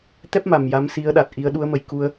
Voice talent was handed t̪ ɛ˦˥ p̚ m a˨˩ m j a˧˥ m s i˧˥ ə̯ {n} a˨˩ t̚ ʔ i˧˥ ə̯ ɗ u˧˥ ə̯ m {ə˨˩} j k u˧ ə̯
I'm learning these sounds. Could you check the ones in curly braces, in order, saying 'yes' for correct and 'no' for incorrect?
no, yes

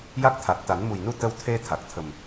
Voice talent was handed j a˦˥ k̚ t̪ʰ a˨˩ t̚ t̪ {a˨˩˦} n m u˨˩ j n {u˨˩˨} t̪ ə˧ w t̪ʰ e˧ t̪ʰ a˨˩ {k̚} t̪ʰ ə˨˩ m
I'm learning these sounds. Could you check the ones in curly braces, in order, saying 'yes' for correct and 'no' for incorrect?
yes, no, yes

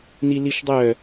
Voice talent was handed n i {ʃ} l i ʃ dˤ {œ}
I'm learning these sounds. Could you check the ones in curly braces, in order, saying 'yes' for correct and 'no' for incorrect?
no, yes

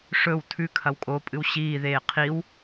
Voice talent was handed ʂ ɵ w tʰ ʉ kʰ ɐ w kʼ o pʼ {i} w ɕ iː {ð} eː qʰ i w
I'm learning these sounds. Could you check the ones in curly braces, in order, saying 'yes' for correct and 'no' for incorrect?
no, yes

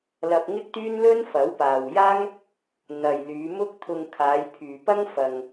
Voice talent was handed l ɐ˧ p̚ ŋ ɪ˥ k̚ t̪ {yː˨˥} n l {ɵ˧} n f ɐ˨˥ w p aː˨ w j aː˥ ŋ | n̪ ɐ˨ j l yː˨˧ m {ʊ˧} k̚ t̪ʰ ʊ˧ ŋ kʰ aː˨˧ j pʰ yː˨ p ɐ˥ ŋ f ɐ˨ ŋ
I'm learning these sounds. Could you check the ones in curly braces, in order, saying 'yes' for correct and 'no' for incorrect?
no, no, no

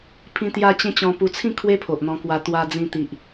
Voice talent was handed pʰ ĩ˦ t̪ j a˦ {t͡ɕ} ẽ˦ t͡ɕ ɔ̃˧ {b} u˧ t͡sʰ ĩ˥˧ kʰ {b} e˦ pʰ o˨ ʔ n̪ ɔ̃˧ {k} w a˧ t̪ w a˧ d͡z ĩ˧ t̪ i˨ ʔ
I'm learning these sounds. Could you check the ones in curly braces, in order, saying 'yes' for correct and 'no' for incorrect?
yes, no, no, yes

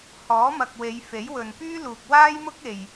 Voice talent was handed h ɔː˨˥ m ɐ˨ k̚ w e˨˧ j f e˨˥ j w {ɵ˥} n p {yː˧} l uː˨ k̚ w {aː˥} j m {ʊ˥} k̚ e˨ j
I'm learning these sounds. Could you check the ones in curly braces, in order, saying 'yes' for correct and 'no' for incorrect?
no, no, yes, yes

